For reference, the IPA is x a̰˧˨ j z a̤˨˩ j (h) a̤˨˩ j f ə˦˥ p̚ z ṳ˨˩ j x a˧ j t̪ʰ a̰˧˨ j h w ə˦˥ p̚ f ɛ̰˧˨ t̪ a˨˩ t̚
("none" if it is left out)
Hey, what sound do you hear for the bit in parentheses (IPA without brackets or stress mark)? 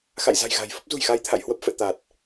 ɣ